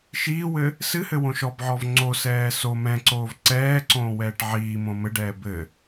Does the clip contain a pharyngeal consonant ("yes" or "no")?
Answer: yes